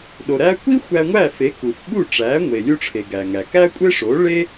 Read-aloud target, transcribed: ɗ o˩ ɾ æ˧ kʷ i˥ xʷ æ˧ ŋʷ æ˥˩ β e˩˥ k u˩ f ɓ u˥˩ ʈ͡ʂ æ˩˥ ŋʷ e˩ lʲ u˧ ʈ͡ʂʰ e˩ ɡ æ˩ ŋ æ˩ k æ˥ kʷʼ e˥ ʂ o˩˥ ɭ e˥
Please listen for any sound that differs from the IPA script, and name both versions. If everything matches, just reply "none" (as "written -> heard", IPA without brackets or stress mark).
β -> f